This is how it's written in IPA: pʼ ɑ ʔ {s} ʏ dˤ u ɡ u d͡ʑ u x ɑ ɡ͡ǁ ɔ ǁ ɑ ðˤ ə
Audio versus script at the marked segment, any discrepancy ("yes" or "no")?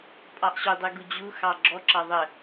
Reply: yes